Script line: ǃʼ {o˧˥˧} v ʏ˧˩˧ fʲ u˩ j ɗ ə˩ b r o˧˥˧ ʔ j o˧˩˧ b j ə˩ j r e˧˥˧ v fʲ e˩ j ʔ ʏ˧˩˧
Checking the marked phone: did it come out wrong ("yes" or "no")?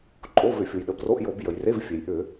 no